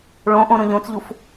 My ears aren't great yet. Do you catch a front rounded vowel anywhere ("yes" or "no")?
no